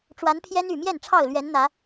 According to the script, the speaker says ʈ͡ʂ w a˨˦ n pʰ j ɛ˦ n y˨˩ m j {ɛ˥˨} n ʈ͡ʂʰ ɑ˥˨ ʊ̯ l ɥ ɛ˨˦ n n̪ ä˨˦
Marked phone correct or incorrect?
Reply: correct